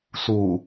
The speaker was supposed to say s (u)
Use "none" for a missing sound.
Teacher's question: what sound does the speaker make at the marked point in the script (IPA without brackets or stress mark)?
u